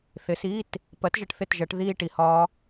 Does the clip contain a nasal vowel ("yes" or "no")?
no